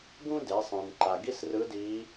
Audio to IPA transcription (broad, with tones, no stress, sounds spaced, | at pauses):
ɡ ũ˥ d e˩˧ sˤ ẽ˩ n ǃ a˩ ɡ i˥ s r ɯ˧˥ d i˧˥